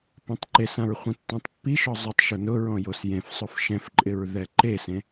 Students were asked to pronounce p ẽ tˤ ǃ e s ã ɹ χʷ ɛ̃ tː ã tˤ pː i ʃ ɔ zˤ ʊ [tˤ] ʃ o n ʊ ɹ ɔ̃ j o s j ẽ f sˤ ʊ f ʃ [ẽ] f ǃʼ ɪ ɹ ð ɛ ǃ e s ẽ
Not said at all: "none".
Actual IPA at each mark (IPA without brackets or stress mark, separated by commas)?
tˤ, ɛ̃